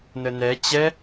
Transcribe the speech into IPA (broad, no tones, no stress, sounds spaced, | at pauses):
n ə n ɛ t͡ɕ ɛ